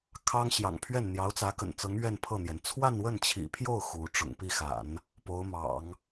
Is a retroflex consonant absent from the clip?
no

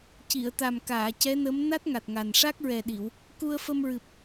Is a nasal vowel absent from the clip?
yes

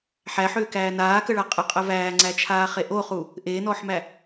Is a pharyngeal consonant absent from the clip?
no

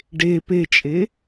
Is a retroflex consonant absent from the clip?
no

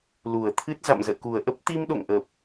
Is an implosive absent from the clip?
no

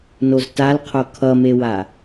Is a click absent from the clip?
yes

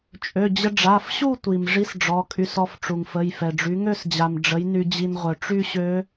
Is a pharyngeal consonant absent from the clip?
yes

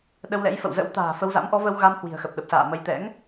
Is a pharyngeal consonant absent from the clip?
yes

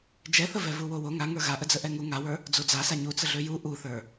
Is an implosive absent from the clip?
yes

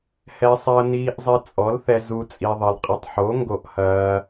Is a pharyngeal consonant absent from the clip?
no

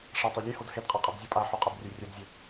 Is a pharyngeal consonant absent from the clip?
no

